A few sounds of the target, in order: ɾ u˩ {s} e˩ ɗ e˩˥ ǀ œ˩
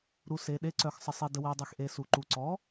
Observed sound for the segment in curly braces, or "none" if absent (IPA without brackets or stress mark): s